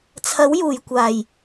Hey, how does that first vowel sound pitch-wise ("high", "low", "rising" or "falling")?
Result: rising